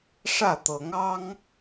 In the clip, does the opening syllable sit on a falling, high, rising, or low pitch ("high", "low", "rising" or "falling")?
falling